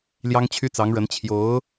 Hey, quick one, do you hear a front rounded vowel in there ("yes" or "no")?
yes